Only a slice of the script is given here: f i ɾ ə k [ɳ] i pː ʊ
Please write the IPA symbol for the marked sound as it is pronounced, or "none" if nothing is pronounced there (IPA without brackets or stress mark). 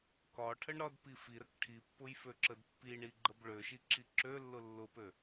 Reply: ʈʰ